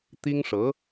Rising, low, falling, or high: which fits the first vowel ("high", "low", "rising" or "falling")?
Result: high